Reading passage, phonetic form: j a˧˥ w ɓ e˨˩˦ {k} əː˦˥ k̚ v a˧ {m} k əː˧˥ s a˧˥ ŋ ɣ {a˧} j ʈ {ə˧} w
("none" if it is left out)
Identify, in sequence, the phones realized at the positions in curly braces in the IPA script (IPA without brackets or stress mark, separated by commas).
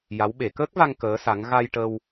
k, ŋ, a˧, ə˧